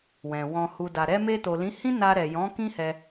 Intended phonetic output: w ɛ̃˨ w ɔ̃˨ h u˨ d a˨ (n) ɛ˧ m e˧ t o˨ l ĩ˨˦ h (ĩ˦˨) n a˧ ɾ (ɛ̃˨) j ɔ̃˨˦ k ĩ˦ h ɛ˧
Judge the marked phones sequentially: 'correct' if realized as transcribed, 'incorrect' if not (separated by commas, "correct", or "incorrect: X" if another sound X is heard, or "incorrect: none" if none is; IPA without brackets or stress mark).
incorrect: ɾ, incorrect: ĩ˦, incorrect: ɛ˨